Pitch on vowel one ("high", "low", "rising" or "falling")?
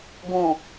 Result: low